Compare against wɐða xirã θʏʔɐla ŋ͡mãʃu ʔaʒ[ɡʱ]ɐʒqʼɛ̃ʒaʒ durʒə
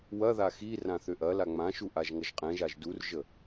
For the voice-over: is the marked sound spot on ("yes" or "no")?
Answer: no